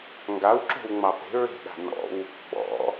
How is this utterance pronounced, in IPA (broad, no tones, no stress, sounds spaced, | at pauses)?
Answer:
ŋ ɡ a w ǁ o̤ w ŋ͡m ɑ p e̤ ɹ e̤ ɗ a̤ n ɔ̰ w | ɓ ɔ̰